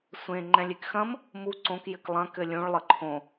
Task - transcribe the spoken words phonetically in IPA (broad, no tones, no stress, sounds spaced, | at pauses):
sʷ ẽ ŋ͡ǃ ɛ̃ lʲ e k x ɐ̃ m | m u ǀ õ k j ɘ k lˠ ɐ̃ k ɘ lʲ ũ ɭ lˠ ə ǃʰ õ